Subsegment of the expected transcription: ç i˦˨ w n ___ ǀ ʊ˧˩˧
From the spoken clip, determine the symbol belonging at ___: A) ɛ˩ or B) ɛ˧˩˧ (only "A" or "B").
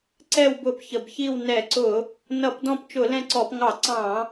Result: B